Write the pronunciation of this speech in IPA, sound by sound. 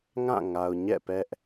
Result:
ŋ ã˦˨ ŋ a˨ ʊ̯ ɲ ɛ̰˦˨ p ɛ˦ ʔ

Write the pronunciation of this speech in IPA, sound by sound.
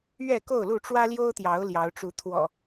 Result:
ɥ ɛ˥˨ k o˥˨ ʊ̯ l u˥˨ ʈ͡ʂ w ä˦ l j o˦ ʊ̯ t̪ j ɑ˨˦ ʊ̯ l j ɑ˨˦ ʊ̯ ʈ͡ʂ u˨˦ t̪ʰ w ɔ̰˨˩

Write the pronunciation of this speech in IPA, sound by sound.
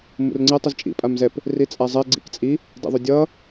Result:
m ṵ r ŋ͡ǀ ɛ tˤ ɯ z t͡ʃʼ ḭ pʼ a m z ɛ p | r i t͡sʼ a zˤ ɛ ɡ͡ǀ ḭ k t͡sʼ i | d ɛ̰ ðˤ o dʲ ʌ

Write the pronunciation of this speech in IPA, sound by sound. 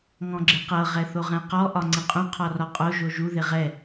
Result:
ŋ ɔ̃ ɡ͡ǁ ɪ q ɤ ʁ ɛ θ o ʁ ɛ̃ q ɔ ʔ ɒ ŋ͡ǀ ɪ qʼ ũ qʰ ɔ r ɒ qʼ o ʒ o ʒ u ð ɪ ʁ ɛ

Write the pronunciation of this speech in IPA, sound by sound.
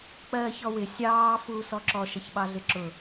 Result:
k͡p ɜː ç ɔ w ɪ sʲ ɑː f uː s ɔ ǁ ɔ ʃ ʌ ç ɓ ɑ ɮ ɪ ǁ ʊ

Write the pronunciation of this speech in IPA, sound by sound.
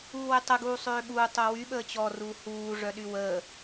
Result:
uː w e tˤ ə ɡ uː sˤ øː ɓ uː tˤ o w y ɓ əː t͡ɕ ɔ r uː h uː ʐ œ ɗ y w əː

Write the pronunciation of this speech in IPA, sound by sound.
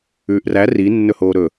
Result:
ʉː ʔ r æ r i nː ɵ h oː ɾ ɵ

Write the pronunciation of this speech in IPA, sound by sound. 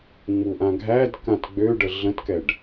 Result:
ŋ͡m u ʔ ã ɡʱ æ d k ã t ɡ͡b ø ɖ ə ɮ ə̃ t k ɛ ɖ

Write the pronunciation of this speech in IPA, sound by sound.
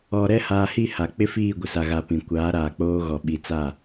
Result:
ɔ˨ ɾ ɛ˦ h aː˨ h i˦˨ h a˨ k͡p ɪ˦ f iː˦˨ ɡʷ ɪ˨ s a˨ ɣ a˨ p ĩ˨ kʷ aː˨˦ ɾ aː˨ k͡p oː˦ ɣ ɔ˨ ɓ i˨˦ t͡s a˦˨

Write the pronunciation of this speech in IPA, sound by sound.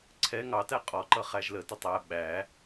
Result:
ǀʰ ɛ ŋ ɑ t æ qʼ ɔ ǃ ʌ χ æ ʒ l ə t ə tˤ æ ɓ æ

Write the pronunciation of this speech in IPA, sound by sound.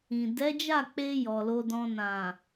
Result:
ĩ˨ d ɛ˨˦ d͡ʒ a˦˨ k͡p e˧ j ɔ˨ l o˧ d ɔ̃˧ n ã˨

